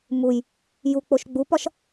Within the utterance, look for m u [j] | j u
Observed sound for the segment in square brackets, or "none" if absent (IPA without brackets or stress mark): j